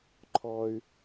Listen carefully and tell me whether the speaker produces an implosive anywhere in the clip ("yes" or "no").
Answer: no